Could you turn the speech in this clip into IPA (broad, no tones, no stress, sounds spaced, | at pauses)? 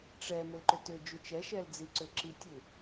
ʈ͡ʂ ɛ m ʏ l ǃ ʏ t ʏ d͡ʒ u t͡ʃ ɛ ʃ ɛ l d͡z i ǀ ʏ ǁ i tʲ u